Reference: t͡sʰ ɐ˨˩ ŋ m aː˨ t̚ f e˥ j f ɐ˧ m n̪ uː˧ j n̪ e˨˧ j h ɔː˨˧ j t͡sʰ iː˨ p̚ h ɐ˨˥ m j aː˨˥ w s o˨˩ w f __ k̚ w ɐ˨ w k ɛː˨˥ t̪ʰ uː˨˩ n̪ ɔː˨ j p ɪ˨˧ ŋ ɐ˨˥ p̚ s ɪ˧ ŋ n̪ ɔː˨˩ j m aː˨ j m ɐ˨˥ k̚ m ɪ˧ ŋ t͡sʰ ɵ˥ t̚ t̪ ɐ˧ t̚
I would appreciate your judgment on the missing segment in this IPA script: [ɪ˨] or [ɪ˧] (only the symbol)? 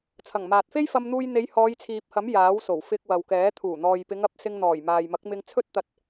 ɪ˧